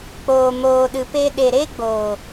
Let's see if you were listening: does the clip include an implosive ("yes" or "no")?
yes